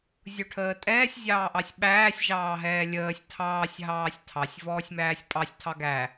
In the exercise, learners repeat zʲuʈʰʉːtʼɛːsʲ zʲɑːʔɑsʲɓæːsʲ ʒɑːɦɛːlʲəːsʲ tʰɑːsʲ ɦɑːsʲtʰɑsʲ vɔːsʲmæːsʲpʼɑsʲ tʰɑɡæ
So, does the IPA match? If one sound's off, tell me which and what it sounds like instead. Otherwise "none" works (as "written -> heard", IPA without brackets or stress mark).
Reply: ʉː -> əː